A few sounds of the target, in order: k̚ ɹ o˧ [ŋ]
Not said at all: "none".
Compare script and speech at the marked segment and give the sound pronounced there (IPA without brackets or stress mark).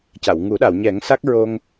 ŋ